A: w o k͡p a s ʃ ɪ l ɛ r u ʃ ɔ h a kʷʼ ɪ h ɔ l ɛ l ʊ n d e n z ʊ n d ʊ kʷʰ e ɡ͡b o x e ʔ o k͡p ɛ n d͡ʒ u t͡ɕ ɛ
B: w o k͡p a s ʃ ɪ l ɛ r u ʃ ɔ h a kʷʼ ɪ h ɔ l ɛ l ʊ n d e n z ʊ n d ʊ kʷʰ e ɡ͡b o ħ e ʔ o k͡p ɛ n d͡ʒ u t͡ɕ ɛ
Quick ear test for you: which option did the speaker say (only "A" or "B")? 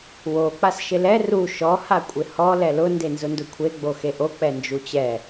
A